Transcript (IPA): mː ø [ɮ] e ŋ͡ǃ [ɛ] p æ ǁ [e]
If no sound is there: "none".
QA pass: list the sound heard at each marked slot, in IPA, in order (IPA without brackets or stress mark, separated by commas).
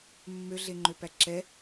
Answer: ɮ, ø, ɛ